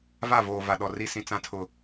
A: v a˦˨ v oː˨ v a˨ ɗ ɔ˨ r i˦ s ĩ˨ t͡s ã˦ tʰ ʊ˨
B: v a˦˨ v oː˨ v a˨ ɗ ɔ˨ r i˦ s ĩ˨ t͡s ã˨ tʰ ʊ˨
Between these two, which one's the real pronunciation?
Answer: A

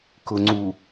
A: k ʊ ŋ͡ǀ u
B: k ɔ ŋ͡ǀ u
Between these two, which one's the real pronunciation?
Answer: A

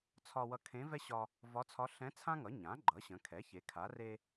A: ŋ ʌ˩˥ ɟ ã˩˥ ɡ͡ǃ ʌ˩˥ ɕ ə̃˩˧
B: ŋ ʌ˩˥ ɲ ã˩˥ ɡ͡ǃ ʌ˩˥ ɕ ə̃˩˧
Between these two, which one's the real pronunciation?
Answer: B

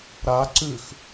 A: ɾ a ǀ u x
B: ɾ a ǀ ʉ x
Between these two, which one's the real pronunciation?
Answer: B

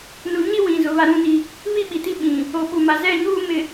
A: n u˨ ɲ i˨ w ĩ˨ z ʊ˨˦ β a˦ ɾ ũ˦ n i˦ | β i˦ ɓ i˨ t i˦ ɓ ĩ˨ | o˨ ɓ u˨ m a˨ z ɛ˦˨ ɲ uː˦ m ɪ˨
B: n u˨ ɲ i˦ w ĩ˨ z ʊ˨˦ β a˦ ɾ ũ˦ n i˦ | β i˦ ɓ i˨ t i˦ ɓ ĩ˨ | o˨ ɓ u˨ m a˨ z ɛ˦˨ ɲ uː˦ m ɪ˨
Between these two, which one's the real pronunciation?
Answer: B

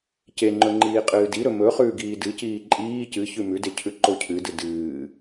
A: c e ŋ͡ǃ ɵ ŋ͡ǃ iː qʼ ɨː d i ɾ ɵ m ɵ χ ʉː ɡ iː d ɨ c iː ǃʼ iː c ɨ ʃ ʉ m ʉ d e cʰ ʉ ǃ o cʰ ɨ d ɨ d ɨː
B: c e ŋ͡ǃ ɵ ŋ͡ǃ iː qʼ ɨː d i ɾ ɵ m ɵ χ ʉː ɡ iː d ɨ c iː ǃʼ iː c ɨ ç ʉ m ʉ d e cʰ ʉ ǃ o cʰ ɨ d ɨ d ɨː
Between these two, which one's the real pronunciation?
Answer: B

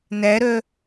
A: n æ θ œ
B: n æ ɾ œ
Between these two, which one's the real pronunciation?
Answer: B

